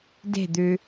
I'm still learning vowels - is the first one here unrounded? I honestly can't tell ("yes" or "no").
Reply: yes